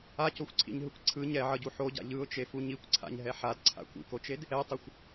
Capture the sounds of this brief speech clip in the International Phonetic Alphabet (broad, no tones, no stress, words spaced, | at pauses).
acoxʷǀʰḭɲɦɯkʷ ǀʰɯ ɲɛʕʌɟu ħoɟa̰ ʎɯʊ̯t͡ʃefu ɲikʷǀʰa̰ɲɦɛ ħadǀʰa̰ kʷḭkot͡ʃed | ɛtˤʌxʷ